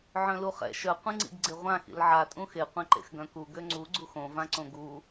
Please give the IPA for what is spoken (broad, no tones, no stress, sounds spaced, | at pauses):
ʕ œ̃ l u χ ɛ̰ ʃ œ qʷ ĩ ŋ͡ǀ ḭ ɡ ɡ͡ǀ e ʁʷ ã x ḭ l ʕ a tʼ ũ x e qʷ ɛ̃ ǃ ḛ x ɡ œ̃ k u ɡ ø ŋ͡ǀ u ɡ͡ǀ u x õ v ã ǀ õ ɡ u